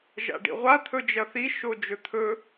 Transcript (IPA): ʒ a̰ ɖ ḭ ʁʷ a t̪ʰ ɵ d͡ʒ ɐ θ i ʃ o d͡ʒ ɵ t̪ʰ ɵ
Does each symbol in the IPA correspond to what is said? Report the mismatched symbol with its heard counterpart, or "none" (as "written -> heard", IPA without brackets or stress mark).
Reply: none